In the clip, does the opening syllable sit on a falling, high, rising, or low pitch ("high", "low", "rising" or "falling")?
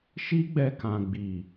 high